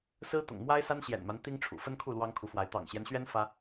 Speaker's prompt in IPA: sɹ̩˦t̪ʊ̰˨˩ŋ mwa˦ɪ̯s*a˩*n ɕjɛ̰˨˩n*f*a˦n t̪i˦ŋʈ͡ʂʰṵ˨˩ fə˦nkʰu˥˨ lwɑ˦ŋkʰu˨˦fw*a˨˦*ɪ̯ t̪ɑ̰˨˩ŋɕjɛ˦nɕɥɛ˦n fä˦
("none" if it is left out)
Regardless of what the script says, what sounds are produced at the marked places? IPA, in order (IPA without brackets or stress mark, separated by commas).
a˦, m, a˨˦